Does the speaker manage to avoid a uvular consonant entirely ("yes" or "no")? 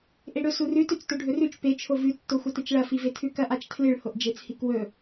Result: yes